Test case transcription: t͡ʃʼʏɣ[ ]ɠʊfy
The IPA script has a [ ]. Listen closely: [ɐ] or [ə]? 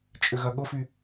ɐ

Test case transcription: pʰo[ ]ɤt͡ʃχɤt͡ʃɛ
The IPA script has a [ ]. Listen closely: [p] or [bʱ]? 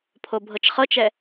bʱ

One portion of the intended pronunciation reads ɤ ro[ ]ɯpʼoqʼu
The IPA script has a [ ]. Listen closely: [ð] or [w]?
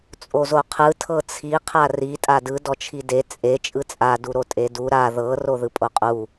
ð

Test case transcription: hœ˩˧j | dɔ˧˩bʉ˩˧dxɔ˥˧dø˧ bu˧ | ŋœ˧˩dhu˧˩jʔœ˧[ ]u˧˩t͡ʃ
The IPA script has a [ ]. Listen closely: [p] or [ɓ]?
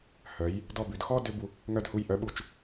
ɓ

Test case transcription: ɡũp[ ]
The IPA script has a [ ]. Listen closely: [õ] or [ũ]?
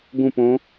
õ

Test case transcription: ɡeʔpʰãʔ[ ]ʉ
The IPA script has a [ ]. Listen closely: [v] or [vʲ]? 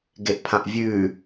vʲ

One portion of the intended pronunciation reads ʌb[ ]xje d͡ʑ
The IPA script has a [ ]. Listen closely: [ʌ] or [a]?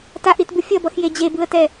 ʌ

